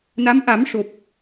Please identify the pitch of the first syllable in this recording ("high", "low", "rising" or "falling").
rising